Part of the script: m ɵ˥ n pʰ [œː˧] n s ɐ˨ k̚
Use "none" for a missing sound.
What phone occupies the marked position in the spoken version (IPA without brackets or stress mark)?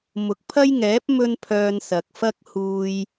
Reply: œː˧